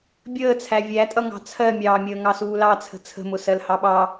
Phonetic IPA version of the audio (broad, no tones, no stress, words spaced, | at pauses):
bʲəːt͡sʰæ vʲætʼʌŋɑ̤ t͡sʰɜmʲɑːmʲəː ŋɑsuːlɑt͡sʰə̤ t͡sʰə̤mʊ sɜlhɑɓɑ